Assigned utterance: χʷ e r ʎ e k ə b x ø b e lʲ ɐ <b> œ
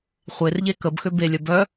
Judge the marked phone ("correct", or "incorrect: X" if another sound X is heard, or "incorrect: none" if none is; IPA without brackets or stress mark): correct